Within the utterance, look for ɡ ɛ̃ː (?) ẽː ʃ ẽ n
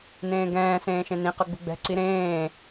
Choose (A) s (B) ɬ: A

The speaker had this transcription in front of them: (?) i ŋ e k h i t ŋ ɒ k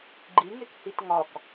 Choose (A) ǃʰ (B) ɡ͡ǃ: B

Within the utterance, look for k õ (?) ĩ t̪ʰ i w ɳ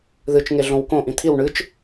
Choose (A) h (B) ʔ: B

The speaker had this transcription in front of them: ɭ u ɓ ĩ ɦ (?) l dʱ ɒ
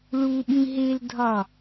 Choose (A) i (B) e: B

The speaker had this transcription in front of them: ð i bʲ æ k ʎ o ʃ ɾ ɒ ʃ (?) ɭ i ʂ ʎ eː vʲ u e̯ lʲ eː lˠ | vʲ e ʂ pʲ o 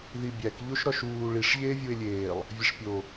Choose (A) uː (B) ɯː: A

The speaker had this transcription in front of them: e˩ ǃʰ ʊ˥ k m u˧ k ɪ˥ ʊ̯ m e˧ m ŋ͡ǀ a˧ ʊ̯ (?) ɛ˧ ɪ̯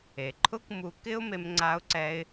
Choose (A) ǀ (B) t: A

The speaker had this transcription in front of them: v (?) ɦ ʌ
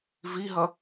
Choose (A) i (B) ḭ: A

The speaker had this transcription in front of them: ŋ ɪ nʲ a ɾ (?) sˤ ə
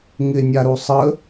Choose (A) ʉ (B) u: B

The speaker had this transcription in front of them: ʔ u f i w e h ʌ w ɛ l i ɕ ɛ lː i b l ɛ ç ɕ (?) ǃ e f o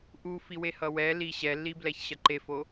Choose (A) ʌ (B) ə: A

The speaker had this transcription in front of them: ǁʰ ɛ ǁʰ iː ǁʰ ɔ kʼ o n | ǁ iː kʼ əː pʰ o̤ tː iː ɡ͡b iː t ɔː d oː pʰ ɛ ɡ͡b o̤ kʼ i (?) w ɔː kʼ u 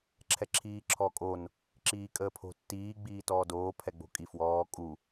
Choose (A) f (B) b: A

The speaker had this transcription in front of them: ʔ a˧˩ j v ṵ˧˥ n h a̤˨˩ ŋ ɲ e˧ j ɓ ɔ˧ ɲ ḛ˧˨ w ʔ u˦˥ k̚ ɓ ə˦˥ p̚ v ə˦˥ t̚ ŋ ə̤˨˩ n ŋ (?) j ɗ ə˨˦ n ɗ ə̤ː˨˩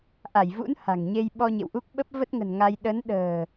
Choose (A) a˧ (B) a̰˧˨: A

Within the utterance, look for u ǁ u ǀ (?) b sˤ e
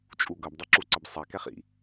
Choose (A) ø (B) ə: B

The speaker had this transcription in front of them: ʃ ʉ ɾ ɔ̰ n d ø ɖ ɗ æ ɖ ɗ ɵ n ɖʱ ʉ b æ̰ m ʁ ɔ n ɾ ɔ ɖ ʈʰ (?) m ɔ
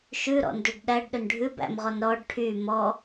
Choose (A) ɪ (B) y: B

